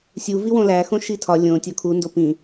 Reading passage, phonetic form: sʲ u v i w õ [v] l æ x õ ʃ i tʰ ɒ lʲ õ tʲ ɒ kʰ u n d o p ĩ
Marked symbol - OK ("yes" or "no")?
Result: no